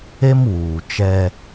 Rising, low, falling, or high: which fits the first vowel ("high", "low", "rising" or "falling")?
high